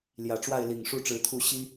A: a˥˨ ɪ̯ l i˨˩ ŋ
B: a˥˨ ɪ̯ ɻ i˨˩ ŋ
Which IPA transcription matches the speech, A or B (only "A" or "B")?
A